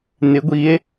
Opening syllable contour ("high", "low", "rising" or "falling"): rising